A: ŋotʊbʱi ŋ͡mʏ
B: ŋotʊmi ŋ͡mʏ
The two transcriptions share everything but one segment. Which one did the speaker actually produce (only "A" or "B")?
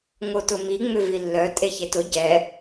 B